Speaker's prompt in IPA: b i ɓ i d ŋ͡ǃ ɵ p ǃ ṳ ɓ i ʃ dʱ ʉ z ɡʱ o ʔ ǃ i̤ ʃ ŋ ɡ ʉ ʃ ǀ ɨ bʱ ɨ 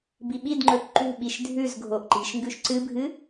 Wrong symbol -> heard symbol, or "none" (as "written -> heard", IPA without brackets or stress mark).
none